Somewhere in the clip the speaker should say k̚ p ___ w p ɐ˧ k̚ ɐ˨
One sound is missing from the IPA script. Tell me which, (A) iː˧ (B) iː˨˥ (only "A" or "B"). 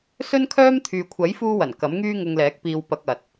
A